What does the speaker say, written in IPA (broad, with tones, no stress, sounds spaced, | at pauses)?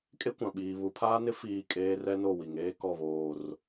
kʼ e˦ kʷ ã˨ ɓ iː˨ β u˨ pʰ aː˦ n ɪ˦ f iː˦˨ kʼ eː˦ r ɛ˦ n o˦˨ w i˨ ŋ eː˦ k ɔ˦˨ β oː˨ r